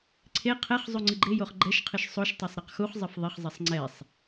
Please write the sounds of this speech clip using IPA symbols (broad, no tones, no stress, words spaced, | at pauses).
ǀʰe qʰɛχ zˤuŋ͡ǀɨɡ͡ǃejoχ ɡ͡ǃɛʃqʰɨʃ sˤoʃtˤɐsˤ ɾɛqxuχzˤɘf ðˤɘχzˤɐsˤ ŋ͡ǀɛsˤ